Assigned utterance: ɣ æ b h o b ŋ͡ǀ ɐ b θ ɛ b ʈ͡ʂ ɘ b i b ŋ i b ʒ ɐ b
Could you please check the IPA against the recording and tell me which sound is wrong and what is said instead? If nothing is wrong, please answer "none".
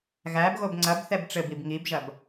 h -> ɣ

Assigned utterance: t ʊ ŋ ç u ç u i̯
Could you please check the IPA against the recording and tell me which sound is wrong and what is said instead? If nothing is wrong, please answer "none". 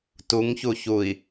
ʊ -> u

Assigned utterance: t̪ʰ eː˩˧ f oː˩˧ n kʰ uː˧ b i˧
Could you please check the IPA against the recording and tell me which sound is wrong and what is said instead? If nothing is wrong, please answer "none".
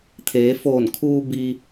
oː˩˧ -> oː˧˩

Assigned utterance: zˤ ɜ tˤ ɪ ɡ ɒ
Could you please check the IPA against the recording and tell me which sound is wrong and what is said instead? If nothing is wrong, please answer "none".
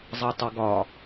none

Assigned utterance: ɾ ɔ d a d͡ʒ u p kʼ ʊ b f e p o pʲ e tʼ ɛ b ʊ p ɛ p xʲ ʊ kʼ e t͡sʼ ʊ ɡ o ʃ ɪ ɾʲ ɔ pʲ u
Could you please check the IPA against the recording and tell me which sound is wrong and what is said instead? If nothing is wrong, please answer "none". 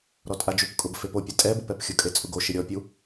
d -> tʼ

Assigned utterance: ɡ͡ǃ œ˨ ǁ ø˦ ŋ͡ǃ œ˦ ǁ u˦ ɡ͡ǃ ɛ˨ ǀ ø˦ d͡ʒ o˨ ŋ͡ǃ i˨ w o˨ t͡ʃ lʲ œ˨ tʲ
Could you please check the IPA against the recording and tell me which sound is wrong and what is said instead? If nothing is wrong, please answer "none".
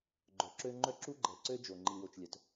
tʲ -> t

